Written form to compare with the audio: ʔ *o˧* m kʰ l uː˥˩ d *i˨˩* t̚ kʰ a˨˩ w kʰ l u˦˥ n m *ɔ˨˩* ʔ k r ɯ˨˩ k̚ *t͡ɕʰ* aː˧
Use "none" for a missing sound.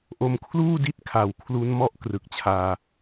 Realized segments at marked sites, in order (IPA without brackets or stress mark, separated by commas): o˧, i˦˥, ɔ˦˥, t͡ɕʰ